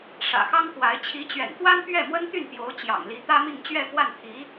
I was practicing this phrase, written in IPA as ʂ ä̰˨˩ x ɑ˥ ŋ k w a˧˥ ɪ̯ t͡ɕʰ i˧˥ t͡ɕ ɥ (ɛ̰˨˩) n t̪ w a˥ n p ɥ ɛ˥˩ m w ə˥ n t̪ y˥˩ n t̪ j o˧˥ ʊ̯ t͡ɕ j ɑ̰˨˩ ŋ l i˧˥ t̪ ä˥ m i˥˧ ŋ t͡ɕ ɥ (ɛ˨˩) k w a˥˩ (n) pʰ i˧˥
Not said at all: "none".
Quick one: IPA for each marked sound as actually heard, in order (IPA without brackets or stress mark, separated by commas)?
ɛ̰˨˩, ɛ˥˧, n